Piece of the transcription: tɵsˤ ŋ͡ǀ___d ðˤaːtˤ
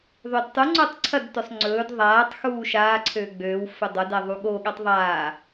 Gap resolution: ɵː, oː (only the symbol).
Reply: ɵː